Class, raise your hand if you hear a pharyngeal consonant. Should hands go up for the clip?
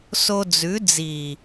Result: no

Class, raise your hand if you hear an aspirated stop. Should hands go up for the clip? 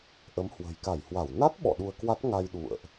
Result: no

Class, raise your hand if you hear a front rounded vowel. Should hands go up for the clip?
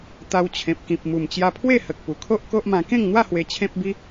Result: no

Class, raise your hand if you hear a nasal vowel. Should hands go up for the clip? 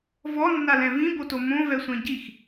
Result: yes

